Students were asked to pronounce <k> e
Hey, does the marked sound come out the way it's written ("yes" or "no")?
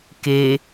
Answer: yes